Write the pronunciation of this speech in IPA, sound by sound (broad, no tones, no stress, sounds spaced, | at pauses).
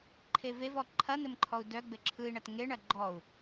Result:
ǃʰ e v e v ɔ ǃʰ ɐ n̪ ɘ m ǃʰ ɔ u̯ d œ ɡ͡b ɘ ǁʰ ɯ i̯ ɳ ɐ t ŋ e ɳ ɐ ɡ͡ǃ ɔ u̯